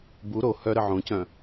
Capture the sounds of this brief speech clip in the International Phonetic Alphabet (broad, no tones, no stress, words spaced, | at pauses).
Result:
bu ɾo hœɾə ʕõcœ̃